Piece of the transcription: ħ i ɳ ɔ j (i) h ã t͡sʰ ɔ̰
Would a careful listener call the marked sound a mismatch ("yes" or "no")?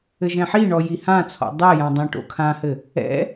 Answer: no